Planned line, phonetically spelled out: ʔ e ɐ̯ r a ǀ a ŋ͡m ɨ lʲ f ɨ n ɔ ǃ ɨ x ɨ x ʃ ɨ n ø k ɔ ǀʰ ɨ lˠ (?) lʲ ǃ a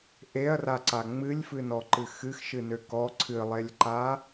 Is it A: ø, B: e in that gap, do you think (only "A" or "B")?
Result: B